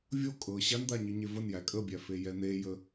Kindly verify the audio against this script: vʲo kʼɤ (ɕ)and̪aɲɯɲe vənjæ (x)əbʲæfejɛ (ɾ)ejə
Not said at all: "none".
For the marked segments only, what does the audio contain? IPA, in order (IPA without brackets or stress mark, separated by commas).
ɕ, kʼ, n̪